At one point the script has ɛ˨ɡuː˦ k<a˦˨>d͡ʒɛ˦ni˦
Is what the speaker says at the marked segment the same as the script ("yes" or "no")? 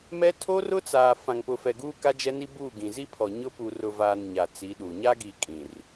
no